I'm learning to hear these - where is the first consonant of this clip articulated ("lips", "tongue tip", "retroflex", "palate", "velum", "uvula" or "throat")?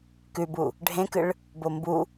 velum